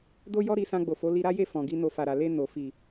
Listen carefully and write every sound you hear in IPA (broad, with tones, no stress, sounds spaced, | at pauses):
d o˦ j ɔ˦ ɾ i˧ s ã˧ ɡ͡b o˨ f o˨˦ l i˧ ɾ a˦ j e˦˨ f ɔ̃˨ ɡ i˧ n o˧ f a˨ ɾ a˨ l e˧ n o˨ f i˨